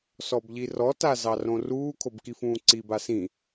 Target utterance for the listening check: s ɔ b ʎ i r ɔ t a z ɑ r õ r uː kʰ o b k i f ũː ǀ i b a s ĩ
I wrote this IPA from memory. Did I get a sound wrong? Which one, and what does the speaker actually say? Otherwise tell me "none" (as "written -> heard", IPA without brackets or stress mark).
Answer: none